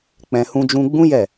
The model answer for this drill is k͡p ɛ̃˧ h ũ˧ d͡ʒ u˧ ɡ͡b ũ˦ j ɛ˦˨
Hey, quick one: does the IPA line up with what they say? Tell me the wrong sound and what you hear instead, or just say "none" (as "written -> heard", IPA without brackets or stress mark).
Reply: u˧ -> ũ˧